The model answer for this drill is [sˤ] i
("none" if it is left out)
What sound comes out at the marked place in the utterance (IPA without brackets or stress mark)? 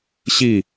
ɕ